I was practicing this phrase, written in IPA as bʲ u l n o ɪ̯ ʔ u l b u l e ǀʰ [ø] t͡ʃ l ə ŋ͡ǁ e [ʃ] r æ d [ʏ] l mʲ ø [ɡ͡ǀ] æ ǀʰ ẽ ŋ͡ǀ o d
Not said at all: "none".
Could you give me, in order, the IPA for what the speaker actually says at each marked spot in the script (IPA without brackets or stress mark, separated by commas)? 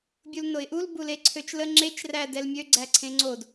ø, t͡ʃ, ɛ, ɡ͡ǀ